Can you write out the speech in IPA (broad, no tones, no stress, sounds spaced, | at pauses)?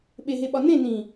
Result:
ɓ e ɦ e ɓ ɒ n ẽ n ĩ